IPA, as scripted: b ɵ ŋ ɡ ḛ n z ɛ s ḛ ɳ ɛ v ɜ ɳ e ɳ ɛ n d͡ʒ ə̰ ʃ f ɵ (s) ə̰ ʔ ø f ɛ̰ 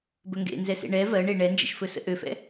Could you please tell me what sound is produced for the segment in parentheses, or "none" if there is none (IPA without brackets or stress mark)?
s